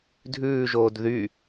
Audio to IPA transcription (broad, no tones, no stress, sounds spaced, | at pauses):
dʱ ʉː ʒ oː d ð y